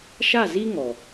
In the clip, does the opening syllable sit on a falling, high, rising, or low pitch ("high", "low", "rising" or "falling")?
falling